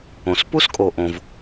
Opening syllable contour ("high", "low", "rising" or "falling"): low